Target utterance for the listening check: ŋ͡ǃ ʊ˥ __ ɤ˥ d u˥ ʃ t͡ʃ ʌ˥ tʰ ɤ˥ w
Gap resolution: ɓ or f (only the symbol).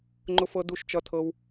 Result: f